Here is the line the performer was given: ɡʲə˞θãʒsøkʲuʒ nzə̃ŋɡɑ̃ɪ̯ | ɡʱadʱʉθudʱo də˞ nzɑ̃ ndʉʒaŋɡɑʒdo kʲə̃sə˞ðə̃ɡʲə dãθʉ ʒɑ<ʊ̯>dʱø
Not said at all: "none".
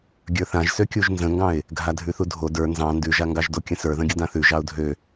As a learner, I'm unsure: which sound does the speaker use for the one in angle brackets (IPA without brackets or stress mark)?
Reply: ʊ̯